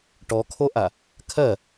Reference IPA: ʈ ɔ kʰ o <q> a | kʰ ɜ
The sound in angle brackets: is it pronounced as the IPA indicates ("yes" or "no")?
no